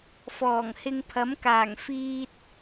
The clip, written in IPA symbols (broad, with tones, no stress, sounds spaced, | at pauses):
f ɔː˨˩ ŋ h ɪ˧ ŋ pʰ ɐ˨˥ m k aː˨˩ ŋ f iː˧ t̚